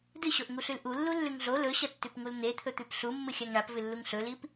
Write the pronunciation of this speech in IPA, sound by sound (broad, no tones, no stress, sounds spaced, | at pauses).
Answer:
d ɨ ɕ o ʔ ŋ u ɬ ʉ l ʔ u lː u lː ʉ ŋ ɮ o l ɵ ɕ ɐ tː ʉ p ŋ u l n̪ e t̪ʰ ɵ t̪ ʉ p ɬ u mː ɨ xʲ a ŋ ɳ a p v ɨ lː u ŋ ɬ ɵ l i p